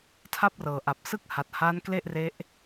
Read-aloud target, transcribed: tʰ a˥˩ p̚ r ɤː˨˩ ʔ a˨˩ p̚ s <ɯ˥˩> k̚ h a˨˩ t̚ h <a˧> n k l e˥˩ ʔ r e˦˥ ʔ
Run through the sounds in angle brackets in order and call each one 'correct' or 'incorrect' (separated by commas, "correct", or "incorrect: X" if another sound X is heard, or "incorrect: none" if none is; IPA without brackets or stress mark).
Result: correct, incorrect: a˦˥